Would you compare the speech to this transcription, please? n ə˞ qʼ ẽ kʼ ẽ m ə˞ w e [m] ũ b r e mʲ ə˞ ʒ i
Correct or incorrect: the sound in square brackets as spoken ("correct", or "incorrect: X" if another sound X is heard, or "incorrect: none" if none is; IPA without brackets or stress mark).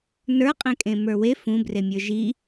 incorrect: f